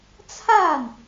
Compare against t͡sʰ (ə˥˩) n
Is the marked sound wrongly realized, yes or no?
yes